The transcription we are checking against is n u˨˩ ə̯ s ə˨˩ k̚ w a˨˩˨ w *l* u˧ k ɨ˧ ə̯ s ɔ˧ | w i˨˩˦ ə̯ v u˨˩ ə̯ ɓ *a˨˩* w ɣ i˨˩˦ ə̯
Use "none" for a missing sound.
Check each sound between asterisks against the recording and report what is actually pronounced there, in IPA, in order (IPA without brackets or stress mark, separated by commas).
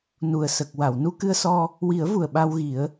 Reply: n, a˧